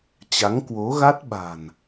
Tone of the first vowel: rising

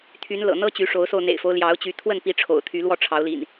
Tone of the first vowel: rising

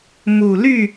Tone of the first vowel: low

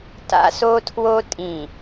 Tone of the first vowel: high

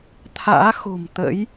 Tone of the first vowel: rising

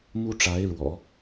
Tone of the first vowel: high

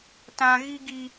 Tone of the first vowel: high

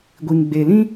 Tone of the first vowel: low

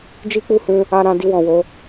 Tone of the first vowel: high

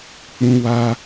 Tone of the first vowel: high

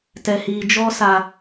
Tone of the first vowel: low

